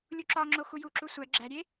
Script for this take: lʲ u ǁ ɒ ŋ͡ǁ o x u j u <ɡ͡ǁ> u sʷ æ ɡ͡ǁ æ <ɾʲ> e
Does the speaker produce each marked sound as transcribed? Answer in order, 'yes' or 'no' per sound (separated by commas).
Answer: no, yes